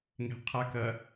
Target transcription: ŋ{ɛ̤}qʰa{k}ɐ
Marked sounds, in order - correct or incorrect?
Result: correct, correct

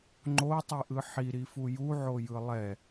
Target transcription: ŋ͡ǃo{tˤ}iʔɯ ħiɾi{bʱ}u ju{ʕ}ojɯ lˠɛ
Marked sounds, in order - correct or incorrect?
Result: correct, incorrect, correct

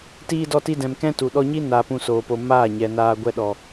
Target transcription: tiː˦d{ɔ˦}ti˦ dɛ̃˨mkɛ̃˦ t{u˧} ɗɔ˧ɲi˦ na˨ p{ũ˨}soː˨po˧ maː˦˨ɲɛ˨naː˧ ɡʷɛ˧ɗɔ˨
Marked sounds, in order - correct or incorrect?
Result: correct, incorrect, incorrect

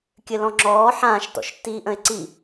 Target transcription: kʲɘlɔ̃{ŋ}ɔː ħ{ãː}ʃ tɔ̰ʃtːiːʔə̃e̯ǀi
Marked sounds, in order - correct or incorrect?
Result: incorrect, correct

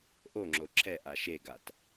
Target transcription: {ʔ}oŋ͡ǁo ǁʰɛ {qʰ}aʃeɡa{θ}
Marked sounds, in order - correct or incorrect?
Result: correct, incorrect, incorrect

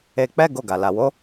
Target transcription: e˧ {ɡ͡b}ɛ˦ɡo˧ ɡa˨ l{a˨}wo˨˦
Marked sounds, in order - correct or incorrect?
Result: incorrect, correct

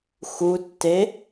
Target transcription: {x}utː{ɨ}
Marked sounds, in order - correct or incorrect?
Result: correct, incorrect

